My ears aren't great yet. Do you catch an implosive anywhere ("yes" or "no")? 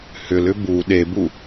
yes